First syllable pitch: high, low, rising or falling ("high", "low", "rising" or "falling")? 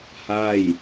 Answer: falling